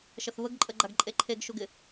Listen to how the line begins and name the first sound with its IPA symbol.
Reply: ʃ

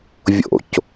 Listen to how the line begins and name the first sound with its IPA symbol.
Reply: vʲ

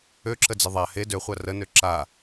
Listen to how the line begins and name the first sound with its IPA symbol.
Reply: ø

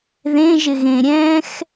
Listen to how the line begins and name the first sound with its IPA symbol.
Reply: ð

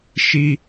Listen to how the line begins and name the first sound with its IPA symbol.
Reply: ʃ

